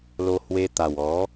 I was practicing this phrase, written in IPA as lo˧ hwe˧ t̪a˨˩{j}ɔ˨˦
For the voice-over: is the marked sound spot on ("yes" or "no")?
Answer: no